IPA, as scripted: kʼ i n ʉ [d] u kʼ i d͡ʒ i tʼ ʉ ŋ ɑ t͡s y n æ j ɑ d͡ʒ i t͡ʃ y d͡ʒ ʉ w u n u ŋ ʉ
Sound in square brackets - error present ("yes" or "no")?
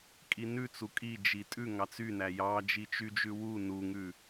yes